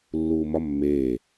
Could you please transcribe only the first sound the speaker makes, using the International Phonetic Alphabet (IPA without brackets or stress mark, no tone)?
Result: lː